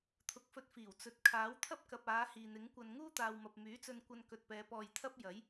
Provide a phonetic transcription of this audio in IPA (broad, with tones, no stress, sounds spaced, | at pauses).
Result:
t̪ʰ ʊ˨˥ k̚ f ɵ˧ t̚ f iː˨˩ w t͡s ɵ˨ t̚ kʰ aː˨˥ w t̪ʰ ɐ˥ p̚ k ɐ˨ p̚ aː˨˧ h iː˨ n̪ ɪ˨˥ ŋ kʷ ɐ˨ n ŋ uː˥ t̪ aː˨ w m ɐ˨ p̚ m yː˨˥ t͡s ɵ˧ n kʷ ɐ˧ n k ɵ˨ t̚ p ɛː˨˧ p ɔː˧ j t̪ʰ ɐ˥ p̚ j ɐ˨˥ j